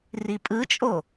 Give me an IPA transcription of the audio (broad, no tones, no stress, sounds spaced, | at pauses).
r i pʼ ɯ t͡ʃʼ o